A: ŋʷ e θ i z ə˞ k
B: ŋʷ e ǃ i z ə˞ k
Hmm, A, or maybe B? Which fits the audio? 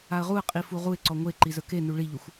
B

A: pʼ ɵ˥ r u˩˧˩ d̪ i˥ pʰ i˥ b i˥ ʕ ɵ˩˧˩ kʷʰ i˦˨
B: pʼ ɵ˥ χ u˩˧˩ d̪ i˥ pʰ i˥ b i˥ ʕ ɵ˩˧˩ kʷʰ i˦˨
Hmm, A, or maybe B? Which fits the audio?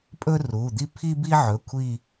A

